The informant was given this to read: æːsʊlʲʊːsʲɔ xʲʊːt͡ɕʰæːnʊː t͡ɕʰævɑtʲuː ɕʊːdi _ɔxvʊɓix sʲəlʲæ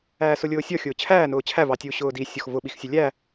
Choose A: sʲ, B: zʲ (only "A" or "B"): A